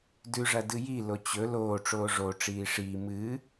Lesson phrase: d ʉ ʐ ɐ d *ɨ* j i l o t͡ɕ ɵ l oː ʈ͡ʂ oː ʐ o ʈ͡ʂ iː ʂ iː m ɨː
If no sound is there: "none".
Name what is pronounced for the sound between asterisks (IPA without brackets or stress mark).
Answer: ɨ